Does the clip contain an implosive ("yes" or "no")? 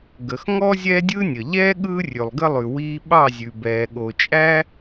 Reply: yes